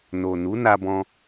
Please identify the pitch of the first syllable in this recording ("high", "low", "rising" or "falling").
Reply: low